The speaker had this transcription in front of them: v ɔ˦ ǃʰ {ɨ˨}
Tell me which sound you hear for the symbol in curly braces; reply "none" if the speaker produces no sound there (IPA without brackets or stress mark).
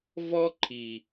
i˨